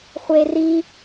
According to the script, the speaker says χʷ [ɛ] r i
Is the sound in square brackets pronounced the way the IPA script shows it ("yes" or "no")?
no